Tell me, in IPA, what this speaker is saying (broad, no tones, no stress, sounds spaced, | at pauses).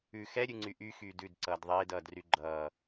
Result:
ʉ x ɛ ɾʲ ʉ ŋ͡ǀ y ʔ y x yː d ʉ d ǀ ʌː d ðˤ eː d ʌː d r y ɡ͡ǃ ʌː